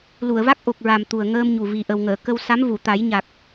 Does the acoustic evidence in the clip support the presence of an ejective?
no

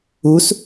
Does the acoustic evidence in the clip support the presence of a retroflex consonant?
no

